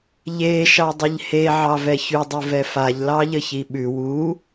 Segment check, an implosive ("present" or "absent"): present